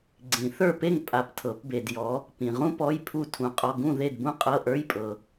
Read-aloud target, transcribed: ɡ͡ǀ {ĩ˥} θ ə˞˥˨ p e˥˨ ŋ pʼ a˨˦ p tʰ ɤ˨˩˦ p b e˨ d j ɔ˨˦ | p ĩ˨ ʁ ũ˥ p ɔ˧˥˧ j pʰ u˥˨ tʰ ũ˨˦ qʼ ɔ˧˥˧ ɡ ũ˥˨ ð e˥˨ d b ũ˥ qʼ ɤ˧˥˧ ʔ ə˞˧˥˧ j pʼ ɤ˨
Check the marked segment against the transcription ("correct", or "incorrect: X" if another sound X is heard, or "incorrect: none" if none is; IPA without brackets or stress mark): incorrect: ĩ˨˩˦